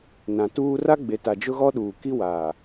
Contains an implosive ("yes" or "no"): yes